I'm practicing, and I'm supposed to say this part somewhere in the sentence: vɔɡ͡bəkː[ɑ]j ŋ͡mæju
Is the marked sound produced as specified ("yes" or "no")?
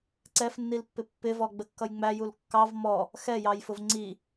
no